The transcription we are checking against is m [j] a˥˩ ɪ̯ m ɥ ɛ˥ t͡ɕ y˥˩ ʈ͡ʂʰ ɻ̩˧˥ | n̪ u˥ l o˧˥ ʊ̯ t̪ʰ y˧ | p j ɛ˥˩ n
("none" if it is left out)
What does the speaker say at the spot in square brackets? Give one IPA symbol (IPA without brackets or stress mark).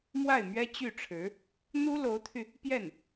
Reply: w